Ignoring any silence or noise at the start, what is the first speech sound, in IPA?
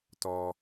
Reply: t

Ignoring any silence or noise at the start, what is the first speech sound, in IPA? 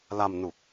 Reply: l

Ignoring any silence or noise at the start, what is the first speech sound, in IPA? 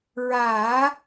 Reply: ɹ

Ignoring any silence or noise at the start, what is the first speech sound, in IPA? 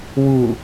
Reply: w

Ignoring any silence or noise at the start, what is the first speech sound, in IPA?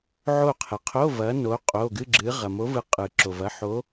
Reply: ʕ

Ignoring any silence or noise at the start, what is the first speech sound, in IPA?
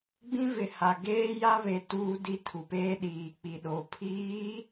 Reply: ɡ͡b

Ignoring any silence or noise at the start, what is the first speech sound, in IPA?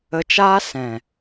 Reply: ə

